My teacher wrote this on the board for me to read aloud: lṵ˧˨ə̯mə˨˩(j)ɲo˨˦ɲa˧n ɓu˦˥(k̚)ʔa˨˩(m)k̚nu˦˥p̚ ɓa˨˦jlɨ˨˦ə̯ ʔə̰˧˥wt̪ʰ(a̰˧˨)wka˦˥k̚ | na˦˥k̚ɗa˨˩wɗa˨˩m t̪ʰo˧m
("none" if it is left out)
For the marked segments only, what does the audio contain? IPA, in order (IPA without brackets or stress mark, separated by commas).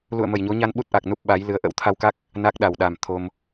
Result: j, t̚, none, a˧